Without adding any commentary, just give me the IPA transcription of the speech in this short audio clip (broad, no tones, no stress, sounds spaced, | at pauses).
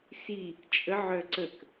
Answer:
s i | t͡ʃʼ ə ʕ œ ǀ ə k